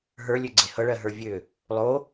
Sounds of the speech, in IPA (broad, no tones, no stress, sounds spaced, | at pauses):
ɦ ə˞ lʲ ø ɡ͡ǀ e h ɤ ɭ ɜ ɦ ə˞ vʲ ø | lˠ o